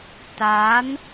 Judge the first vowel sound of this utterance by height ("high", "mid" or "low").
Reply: low